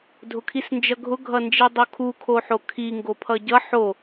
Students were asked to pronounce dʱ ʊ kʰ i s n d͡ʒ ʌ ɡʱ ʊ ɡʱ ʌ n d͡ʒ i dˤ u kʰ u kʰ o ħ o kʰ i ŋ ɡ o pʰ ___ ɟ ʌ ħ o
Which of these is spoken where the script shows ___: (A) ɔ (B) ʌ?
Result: B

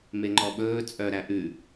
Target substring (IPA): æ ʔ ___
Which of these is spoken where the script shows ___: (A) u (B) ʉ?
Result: B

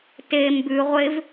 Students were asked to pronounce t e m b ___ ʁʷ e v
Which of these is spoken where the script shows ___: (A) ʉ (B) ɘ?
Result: A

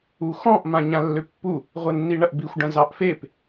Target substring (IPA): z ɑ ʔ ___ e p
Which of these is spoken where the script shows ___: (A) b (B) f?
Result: B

